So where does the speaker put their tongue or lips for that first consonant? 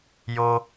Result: palate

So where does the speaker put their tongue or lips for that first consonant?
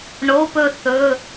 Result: retroflex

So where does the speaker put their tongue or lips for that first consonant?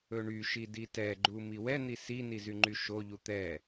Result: retroflex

